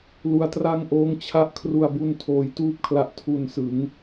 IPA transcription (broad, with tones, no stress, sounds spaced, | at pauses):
l u˧ a̯ t r a˥˩ ŋ ʔ oː˦˥ ŋ t͡ɕʰ a˥˩ ʔ kʰ r u˨˩ a̯ b u˧ n tʰ oː˧ j t uː˥˩ p̚ kʰ l a˦˥ ʔ tʰ u˨˩ n s ɯ˩˦ ŋ